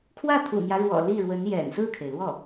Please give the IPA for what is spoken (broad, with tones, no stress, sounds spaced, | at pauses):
kʰ w ä˥˩ t̪ʰ ṵ˨˩ n̪ j ä˦ ɻ w ɔ̰˨˩ l i˥˩ ɻ w ə˧˥ n j ɛ̰˨˩ n s ɹ̩˥˩ kʰ e˩ ɪ̯ l w ɔ˥˩